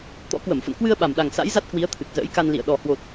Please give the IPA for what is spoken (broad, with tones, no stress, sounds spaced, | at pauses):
t̪ ɔ̰˧˥ k w ə˧˩ m f ə̰˧˨ n k w ɨ˧ ə̯ ɓ a˨˩ m ɗ a˨˩ ŋ s a̰˧˥ j z a˦˥ t̚ k w i˨˦ ə̯ t̪ʰ ɨ˨˩ k̚ z ə̰ː˧˥ j k a˧ n l ḭ˧˨ ə̯ ɗ ɔ˨˩ h w o˨˩ t̚